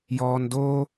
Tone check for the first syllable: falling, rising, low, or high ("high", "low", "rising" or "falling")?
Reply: low